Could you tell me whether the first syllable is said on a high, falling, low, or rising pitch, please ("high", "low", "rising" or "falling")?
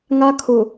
high